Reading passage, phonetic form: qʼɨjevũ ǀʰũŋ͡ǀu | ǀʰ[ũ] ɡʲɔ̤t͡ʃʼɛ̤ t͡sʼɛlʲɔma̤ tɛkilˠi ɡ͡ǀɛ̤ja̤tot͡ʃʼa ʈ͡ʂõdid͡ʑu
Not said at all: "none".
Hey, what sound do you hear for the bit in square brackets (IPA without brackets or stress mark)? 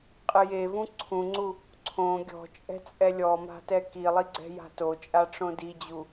õ